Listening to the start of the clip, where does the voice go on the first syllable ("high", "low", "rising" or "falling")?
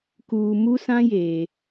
low